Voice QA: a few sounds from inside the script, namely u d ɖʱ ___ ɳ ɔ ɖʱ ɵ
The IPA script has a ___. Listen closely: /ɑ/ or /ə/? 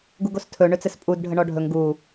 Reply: ə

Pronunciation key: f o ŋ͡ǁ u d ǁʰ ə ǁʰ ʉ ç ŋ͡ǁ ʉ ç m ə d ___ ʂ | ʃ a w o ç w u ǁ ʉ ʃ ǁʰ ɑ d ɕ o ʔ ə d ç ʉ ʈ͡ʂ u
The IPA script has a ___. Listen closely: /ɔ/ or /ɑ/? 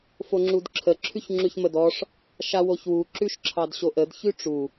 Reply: ɔ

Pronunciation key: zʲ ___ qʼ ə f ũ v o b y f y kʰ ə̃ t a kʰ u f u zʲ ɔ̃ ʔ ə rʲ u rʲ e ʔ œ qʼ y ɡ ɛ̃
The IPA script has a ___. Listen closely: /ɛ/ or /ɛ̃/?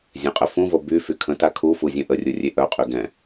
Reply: ɛ̃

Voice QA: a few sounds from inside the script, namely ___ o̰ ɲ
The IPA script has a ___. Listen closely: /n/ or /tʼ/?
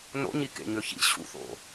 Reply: n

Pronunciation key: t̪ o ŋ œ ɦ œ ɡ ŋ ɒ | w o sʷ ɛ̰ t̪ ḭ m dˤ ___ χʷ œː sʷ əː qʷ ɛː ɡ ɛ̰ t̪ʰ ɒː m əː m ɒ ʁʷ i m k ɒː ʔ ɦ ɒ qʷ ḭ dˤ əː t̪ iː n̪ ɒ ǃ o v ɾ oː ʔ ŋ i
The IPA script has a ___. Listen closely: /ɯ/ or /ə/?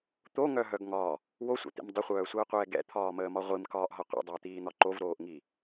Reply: ə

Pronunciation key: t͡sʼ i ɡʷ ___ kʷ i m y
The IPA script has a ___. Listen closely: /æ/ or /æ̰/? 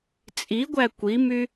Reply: æ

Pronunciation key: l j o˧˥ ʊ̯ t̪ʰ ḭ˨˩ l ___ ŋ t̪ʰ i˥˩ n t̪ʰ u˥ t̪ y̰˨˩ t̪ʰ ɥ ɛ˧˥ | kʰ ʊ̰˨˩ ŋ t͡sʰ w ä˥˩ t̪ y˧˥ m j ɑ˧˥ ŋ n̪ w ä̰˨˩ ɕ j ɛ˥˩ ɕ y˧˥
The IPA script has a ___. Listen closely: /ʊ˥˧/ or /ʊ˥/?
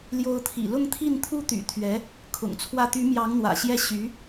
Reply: ʊ˥˧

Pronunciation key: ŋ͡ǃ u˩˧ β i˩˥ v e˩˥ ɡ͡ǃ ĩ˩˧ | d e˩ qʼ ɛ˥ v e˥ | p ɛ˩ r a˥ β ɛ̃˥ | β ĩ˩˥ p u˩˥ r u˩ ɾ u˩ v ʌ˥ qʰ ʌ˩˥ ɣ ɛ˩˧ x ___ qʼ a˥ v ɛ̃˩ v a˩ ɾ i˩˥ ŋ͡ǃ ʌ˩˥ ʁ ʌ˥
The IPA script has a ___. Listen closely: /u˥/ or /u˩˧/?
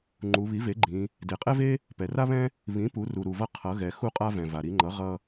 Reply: u˥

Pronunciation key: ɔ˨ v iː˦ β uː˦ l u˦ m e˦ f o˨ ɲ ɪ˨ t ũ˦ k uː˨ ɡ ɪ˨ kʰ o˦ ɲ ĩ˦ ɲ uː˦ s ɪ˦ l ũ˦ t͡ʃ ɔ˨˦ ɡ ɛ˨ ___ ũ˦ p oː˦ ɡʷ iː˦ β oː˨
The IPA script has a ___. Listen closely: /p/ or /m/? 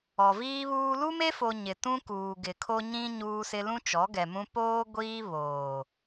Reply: m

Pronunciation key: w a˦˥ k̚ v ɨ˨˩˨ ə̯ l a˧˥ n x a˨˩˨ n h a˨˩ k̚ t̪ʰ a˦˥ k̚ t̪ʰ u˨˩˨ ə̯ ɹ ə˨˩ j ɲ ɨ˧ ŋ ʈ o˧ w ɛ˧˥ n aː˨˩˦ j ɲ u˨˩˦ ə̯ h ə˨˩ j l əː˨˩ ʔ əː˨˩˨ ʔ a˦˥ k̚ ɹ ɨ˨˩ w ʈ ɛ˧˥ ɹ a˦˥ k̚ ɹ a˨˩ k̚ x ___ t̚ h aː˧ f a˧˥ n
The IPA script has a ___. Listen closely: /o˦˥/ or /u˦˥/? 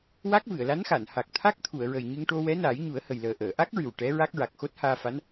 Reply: o˦˥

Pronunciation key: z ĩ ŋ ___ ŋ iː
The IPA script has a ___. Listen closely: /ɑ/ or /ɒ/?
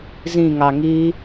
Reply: ɑ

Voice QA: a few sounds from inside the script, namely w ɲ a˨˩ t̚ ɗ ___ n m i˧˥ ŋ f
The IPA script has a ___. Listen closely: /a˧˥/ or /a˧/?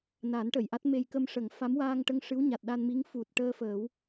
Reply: a˧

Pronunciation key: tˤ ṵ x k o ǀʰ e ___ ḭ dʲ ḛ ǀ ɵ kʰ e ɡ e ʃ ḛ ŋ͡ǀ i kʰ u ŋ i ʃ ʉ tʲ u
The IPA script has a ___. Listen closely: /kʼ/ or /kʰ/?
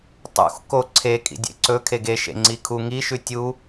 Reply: kʼ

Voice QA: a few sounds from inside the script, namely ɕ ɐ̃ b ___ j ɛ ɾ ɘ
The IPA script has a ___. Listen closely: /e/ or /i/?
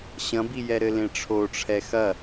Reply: i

